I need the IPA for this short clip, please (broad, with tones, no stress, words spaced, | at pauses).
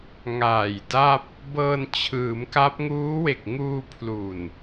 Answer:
ŋaː˨˩jda˥˩p̚ | bɤː˧nt͡ɕʰɯː˩˦mka˦˥p̚ ŋuː˦˥we˨˩k̚ ŋuː˧pʰlu˨˩n